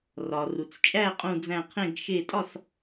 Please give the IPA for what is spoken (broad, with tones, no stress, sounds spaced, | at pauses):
r ɒ˩ r u˩ t͡s t͡ʃʼ æ˥˨ qʼ ũ˧˩ d͡z æ̃˧˩ qʰ ẽ˧˩ ɡ ʃ e˧˩ tʼ ɒ˥˨ s